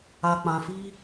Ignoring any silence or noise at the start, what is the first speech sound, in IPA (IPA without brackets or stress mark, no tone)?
a